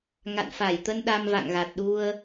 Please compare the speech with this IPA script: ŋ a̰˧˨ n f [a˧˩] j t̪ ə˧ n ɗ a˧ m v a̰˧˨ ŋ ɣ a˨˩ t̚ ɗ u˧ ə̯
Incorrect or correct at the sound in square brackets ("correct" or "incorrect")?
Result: correct